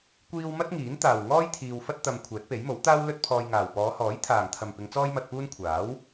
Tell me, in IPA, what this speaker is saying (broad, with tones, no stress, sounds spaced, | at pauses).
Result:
kʷ iː˥ w m ɐ˥ t̚ ŋ iː˨˥ n t̪ aː˨ w ŋ ɔː˥ j t̪ʰ iː˧ w f ɐ˥ t̚ t̪ ɐ˧ m kʷʰ ɛː˨˥ t̚ p e˨˥ j m o˨˥ w t̪ aː˥ w l ɵ˥ t̚ pʰ ɔː˧ j ŋ aː˨ w p ɔː˨˧ h ɔː˨˥ j t̪ʰ aː˨ ŋ t̪ʰ ɐ˨ m p ɪ˨˧ ŋ t͡s ɔː˥ j m ɐ˧ t̚ p uː˥ n kʷʰ aː˨˥ w